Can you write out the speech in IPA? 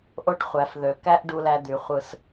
ʔ o˥ ʈ χʷ æ˩˧ f ð ø˩˧ k æ˥ ʔ ɖ u˧ l æ˧ d̪ y˩˧ χʷ ɯ˧ s

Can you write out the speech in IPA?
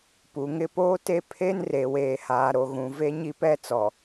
p u˨ ŋ ɪ˦˨ p oː˦ t e˦ pʰ e˦ n r e˨ w eː˨ h aː˨ ɾ o˨ ɣ ũ˨ v e˦ ɲ i˦ p ɛ˦ t͡s ɔ˨

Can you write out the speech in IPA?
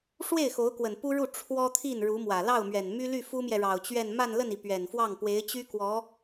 ʂ w e˥˩ ɪ̯ x o˧˥ ʊ̯ k w ə˨˩ n p u˥ ɻ u˥˩ ʈ͡ʂʰ w ɔ˥ t̪ʰ i˥˩ n ɻ u˧˥ m w ä˨˩ l ɑ˥˩ ʊ̯ m ɥ ɛ˨˩ n m y˥ l y˥˩ f u˥ m j ɛ˨ ɻ ɑ˨˩ ʊ̯ t͡ɕ ɥ ɛ˥˧ n m a˥˧ n l ə˥˩ n i˩ p ɥ ɛ˨˩ n f w ɑ˥˩ ŋ p w e˧˥ ɪ̯ t͡ɕ y˥ k w ɔ˧˥

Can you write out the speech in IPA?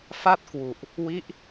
f a˥˩ t̚ k w u˨˩ ʔ | w i˦˥ ʔ

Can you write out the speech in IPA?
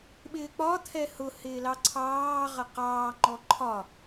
ɓ ɪː k͡p ɒ t̪ʰ ɛ h ʊ h ɪː l ɑ ǀʰ ɑː ʁ ʌ q ɑː ŋ͡ǃ ɔ ǃʰ ɒ

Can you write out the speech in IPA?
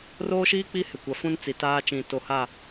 r oː˦ ʃ iː˦ k͡p i˦ h ɪ˨ kʷ a˨ f ũ˦ n t͡s i˨ t aː˦ t͡ʃ ĩ˨ t o˨ h a˦˨

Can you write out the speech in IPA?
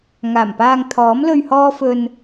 ŋ aː˨˩ m p aː˧ ŋ t̪ʰ ɔː˨˥ m l ɵ˧ ɥ h ɔː˥ f ɵ˧ n

